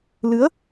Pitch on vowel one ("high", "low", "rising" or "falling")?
rising